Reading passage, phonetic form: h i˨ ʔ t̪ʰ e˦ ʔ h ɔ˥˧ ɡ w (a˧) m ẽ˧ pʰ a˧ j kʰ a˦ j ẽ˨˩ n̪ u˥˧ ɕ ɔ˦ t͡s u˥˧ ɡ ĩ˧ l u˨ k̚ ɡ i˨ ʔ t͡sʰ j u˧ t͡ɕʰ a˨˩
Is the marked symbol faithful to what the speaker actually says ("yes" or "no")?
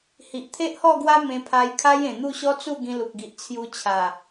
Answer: no